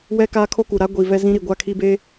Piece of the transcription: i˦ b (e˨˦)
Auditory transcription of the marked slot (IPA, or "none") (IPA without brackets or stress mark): e˦